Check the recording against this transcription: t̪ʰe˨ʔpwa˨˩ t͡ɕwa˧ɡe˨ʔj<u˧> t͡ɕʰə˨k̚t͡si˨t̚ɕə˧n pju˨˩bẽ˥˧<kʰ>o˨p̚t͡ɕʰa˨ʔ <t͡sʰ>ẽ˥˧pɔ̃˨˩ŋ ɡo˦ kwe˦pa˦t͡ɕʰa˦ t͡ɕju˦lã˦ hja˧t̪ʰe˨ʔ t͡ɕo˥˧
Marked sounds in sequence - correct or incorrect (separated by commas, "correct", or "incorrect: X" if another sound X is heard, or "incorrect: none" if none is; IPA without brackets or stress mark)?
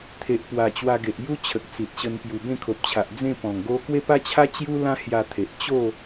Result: incorrect: u˦, correct, incorrect: d͡z